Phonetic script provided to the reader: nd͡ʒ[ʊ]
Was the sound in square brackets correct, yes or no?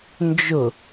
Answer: yes